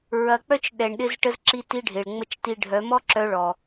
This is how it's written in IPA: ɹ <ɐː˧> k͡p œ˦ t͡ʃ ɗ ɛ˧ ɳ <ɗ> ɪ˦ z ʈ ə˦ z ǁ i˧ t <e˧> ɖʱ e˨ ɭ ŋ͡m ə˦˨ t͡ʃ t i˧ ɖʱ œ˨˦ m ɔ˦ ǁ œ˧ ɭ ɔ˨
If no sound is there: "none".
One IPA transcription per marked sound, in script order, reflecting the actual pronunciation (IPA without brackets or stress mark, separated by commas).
ɐ˧, ɗ, i˧